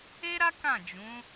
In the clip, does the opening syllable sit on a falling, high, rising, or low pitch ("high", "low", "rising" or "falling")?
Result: high